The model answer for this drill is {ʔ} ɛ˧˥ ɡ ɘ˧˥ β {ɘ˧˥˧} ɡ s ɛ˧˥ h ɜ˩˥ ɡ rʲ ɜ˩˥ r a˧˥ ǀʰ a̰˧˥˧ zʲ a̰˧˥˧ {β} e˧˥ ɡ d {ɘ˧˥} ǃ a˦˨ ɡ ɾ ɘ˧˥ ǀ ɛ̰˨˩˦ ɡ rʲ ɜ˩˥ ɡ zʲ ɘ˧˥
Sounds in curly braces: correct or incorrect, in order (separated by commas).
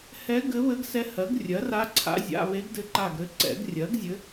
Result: incorrect, incorrect, correct, correct